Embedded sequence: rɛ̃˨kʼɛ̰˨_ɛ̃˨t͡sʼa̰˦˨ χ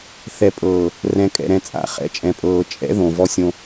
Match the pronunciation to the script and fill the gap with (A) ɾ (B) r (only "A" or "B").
A